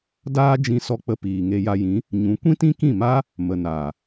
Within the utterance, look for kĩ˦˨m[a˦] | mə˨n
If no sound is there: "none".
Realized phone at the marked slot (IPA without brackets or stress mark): aː˦